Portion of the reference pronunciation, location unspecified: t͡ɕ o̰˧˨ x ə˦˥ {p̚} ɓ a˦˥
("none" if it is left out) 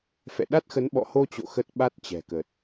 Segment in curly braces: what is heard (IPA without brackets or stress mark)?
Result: t̚